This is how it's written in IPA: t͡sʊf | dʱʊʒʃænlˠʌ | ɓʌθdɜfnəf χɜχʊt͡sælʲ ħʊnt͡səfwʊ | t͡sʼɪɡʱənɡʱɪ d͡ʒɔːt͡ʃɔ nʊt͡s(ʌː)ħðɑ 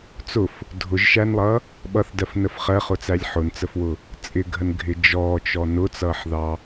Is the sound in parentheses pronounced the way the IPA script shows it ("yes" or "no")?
yes